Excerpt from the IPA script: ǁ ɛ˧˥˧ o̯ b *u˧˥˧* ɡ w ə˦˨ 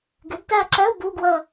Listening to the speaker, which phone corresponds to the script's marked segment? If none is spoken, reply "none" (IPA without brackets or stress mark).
u˧˥˧